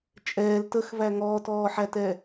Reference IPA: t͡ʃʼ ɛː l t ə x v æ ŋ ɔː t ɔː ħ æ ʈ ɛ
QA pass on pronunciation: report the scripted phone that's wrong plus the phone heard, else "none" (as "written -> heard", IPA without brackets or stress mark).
ʈ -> t